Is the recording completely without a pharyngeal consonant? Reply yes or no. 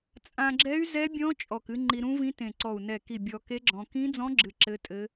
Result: yes